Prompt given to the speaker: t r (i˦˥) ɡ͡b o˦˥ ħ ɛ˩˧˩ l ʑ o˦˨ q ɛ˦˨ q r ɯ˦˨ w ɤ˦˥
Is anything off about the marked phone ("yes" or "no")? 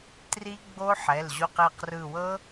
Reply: no